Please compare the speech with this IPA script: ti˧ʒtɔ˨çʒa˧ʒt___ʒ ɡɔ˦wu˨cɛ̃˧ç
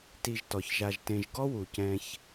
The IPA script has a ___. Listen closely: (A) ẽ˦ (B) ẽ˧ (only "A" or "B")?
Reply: B